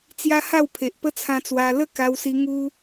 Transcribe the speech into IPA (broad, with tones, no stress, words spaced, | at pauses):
t͡sja˦ha˥˧wpʰe˨ʔ pə˦t͡sʰã˧t͡swa˧ lə˥˧ka˧wsi˧ ŋu˦